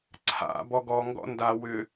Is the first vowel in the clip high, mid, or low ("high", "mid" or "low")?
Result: low